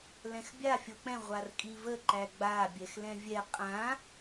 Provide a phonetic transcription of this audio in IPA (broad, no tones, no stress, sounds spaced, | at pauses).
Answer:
l ɛ̃ x bʲ a fʲ o k͡p ɛ̃ ʁʷ a r kʼ i v ə ǃ æ ɡ͡b a bʲ ɛ x l ɛ̃ vʲ ɛ qʼ ã